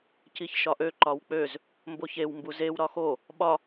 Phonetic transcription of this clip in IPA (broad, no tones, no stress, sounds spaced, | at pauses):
c i ç ʃ ɒ ʔ ø ǃ ɒ w k͡p ø z | m b o ç e w m b u z e w ɾ ɒ x o | ɓ ɒ